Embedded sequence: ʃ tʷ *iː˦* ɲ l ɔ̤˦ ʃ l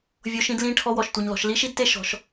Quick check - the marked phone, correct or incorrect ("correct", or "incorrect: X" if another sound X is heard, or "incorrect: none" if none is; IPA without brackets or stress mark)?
incorrect: i˦